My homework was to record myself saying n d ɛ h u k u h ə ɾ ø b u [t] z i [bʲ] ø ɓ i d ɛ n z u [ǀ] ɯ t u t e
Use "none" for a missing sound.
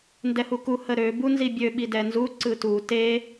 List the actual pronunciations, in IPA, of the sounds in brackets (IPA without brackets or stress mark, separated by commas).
n, bʲ, ǀ